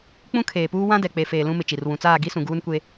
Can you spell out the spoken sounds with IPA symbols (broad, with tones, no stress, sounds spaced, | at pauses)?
k͡p ũ˦ kʰ eː˨ p uː˦ w ã˦ d ɛ˨ k͡p e˨ f eː˨ l ũ˦ m ɪ˨ t͡ʃ i˨ r w ũ˨ t͡s aː˦˨ ɡ i˦ s ũ˨ ɡ uː˦ n kʷ e˦